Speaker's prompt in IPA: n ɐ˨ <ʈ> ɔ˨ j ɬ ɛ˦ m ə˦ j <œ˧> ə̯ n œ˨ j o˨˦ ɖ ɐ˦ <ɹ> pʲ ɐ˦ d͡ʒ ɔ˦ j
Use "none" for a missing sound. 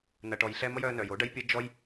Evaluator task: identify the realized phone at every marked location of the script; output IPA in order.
ʈ, œ˧, j

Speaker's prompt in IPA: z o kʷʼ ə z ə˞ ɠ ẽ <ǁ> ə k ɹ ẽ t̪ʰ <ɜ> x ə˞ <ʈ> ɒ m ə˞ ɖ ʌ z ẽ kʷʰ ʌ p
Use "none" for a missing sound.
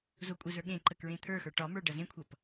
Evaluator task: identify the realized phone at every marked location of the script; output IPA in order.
ǃ, ə˞, ʈ

